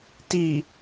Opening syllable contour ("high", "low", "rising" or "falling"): low